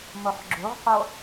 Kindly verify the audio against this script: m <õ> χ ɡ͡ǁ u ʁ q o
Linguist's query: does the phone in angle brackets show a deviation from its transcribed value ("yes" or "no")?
yes